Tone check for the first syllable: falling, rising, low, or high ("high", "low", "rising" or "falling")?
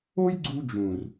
high